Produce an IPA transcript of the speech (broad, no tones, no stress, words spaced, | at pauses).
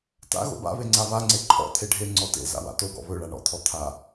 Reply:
ta̰ ɣo̰ba̰βe ŋ͡ǀaβaŋ͡ǀe ǃʰɔ̰ t̪ʰeɖʱe ŋ͡ǀɔtḛ za̰wa̰toɡɔ̰ βɵɭa ɳɔ̰t̪ʰɔ t̪ʰa